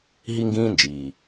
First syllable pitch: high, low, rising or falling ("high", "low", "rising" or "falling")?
high